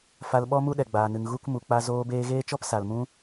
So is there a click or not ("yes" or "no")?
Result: no